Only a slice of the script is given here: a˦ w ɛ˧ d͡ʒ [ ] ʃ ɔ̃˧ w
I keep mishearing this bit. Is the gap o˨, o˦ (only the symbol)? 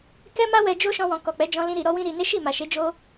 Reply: o˦